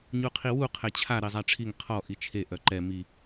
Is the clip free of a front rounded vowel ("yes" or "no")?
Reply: no